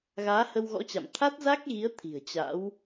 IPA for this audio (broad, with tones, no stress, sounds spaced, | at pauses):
ɣ aː˨˦ h ə˧ w ɣ ɔ̰˧˥ t͡ɕ a̰˧˨ m t̪ʰ a˦˥ t̚ z a˦˥ k̚ ɣ i˨˦ ə̯ t̪ʰ i̤˨˩ ə̯ t͡ɕ a̰˧˥ w